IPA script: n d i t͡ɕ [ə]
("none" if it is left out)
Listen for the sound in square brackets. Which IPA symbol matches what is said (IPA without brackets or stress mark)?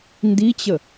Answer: ə